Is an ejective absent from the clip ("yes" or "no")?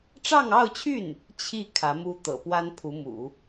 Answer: yes